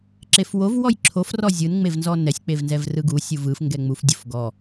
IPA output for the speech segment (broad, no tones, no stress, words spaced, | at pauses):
ǁefwov wɔjǁʰof rɔzʲɯn ŋ͡mevnzɔnɛsʲ k͡pevnzɛvrɯɡu sʲuvɯf ŋɡɛŋ͡muf dʲufɡɔ